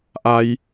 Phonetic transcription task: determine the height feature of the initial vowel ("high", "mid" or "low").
low